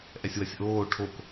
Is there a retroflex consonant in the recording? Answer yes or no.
yes